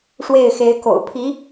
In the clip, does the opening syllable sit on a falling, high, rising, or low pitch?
falling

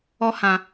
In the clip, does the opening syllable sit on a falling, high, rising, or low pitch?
high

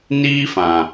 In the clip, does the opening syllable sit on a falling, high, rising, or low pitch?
high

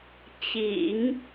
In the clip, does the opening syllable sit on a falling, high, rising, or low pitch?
low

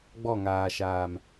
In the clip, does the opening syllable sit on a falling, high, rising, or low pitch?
falling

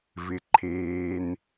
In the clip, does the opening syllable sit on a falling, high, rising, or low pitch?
low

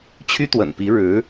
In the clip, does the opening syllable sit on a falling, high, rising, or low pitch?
high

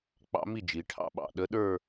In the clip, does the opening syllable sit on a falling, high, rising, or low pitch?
rising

